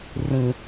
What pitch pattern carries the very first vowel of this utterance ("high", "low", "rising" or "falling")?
low